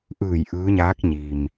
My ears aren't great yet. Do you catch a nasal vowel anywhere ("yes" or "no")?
no